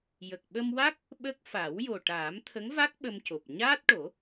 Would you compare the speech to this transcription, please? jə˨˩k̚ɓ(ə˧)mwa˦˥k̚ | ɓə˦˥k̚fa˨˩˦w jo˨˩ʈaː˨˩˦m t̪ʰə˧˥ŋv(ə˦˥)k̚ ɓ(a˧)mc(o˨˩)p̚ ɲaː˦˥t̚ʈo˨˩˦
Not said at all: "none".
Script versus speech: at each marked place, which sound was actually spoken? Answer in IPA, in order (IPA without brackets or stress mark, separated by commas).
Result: ə˧, a˦˥, ə˧, o˨˩